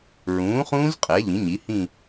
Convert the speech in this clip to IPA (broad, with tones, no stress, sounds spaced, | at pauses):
ɹ ũː˩˥ χ ũː˦˥ z qʼ ɛ˩˥ ʎ ĩ˩˥ ɲ i˩˥ h ĩ˥˧